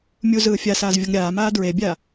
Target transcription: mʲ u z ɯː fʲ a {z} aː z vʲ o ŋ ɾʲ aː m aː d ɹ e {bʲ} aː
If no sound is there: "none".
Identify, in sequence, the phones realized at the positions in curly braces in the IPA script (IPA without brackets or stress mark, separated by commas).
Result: s, bʲ